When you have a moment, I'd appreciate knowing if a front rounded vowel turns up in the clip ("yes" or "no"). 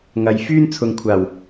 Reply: yes